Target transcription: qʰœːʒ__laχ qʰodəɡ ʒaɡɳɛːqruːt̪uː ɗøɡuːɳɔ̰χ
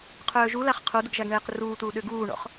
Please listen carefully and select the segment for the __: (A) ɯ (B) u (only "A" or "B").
B